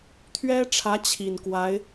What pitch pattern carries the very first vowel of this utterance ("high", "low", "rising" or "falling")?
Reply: high